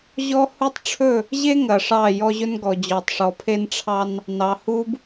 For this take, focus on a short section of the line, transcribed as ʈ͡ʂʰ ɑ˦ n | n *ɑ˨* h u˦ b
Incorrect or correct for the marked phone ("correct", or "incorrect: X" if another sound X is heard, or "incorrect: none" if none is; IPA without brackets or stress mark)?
correct